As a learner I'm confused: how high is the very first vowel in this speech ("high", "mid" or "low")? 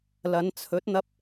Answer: low